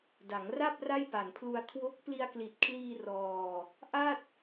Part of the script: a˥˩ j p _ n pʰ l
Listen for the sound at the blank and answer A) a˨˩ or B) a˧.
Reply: A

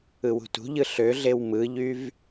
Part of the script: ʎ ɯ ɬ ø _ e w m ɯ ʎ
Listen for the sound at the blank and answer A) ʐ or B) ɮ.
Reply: B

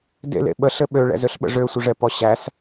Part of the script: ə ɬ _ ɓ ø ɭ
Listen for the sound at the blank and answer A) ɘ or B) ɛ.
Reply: A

